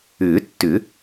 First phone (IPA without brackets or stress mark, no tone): ʏː